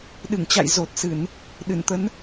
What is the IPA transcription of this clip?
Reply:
ɗ ɨ˧˩ ŋ t͡ɕ a̰˧˨ j z o˨˩ t̚ s ɨ˧˩˨ n | ɗ ɨ˧˩ n t̪ ə˨˦ n

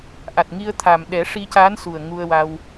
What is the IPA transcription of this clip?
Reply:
ʔ a˨˩ t̚ ŋ i˧ ə̯ t̪ʰ a˨˩ m ɗ ɛ˨˩˦ ʂ i˧ c a˧˥ n s u˨˩ ə̯ ŋ u˧ ə̯ w a˧ w

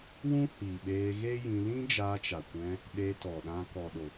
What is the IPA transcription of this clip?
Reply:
w ũ˦ h iː˨ ɓ eː˧ ɣ e˦ j ĩ˧ l ĩ˦ d͡ʒ aː˧ t͡ʃ a˨ kʷ ɛ̃˧ | ɗ e˧ t ɔ˨ ɗ ã˧ k ɔ˨ ɗ o˨

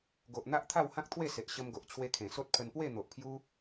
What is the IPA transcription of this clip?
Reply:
ɡ o˨ ʔ n̪ a˦ ʔ t̪ʰ a˥˧ w h ã˦ k̚ t̪ʰ w e˥˧ s e˨ ʔ ɕ ə˧ m ɡ o˨ ʔ t͡ɕʰ w e˧ kʰ ẽ˨˩ s o˦ t̚ pʰ ə˧ n p w e˥˧ n̪ o˨ ʔ pʰ j u˦

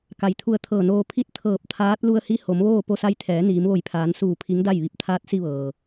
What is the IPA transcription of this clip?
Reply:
k a˩ j t̪ʰ u˧˩ ə̯ t̪ʰ ɤː˧˩ n oː˧ pʰ i˧˥ t̚ t̪ʰ ɤː˧˩ p̚ t̪ʰ aː˧˥ t̚ l u˧ ə̯ h i˧˥ h o˩˧ m ʋ oː˥˨ p o˧ s a˧˥ j t̪ʰ ɛː˩˧ n iː˩˧ m ʋ o˧˩ j pʰ aː˩˧ n s uː˧˩ pʰ i˧˥ ŋ d a˥˨ j ʋ i˧˩ p̚ t̪ʰ aː˧˥ t̚ s i˧ ʋ ɤː˩

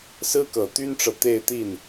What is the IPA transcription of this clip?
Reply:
s ɹ̩˥ k ɤ˨˩ t̪ y˥ n ʈ͡ʂ ɤ˨ t̪ e˥˧ ɪ̯ t̪ i˥˩ n

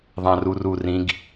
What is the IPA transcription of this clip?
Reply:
ðˤ ã r u r u r ĩ ɡ

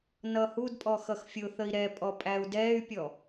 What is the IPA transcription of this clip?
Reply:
n ʌ h u d pʼ ɔ x ʌ x fʲ ʊ θ ə i̯ ɾ ɛ pʼ ɔ pʼ æ u̯ d ɛ y̯ pʲ ɔ

